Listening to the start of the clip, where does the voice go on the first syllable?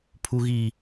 low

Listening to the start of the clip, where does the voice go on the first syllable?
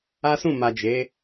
high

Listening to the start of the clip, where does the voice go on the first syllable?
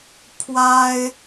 high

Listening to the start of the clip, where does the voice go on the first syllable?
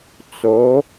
rising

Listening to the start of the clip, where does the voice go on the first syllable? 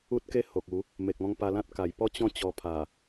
high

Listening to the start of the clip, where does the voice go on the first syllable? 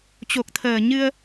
low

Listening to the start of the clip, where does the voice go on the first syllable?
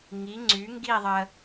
rising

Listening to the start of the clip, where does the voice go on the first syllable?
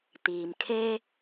low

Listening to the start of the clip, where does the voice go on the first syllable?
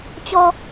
high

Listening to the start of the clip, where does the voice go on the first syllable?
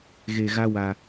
low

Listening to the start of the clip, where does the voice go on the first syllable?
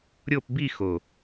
falling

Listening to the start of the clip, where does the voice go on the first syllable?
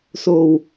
low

